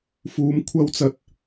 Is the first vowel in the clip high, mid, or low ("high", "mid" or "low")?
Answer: high